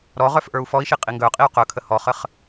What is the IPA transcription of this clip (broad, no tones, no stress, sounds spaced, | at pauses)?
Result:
ɾ ɔ ʁ œ f ʔ ə˞ u̯ f ɔ i̯ ʃ i qʼ i ŋ ɡ œ qʼ i u̯ q œ kʰ ə h ɔ χ ə χ